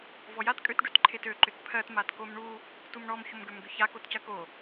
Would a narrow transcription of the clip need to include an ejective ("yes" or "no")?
yes